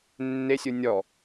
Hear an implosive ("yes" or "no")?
no